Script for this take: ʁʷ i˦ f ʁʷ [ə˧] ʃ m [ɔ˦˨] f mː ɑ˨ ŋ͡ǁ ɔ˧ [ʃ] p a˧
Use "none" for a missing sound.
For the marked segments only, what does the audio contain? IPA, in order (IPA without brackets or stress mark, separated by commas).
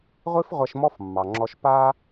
ɐ˧, ɔ˦, ʃ